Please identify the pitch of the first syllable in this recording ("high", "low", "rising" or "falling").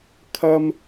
high